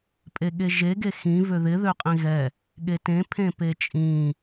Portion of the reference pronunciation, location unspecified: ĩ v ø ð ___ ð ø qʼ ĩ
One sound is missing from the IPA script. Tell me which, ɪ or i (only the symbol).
ɪ